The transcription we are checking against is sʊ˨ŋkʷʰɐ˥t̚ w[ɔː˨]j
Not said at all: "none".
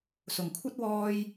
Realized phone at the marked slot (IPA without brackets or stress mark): ɔː˥